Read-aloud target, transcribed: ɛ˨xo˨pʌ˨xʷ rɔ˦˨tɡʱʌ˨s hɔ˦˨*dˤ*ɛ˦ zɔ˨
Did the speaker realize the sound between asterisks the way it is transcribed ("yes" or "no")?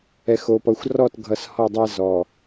yes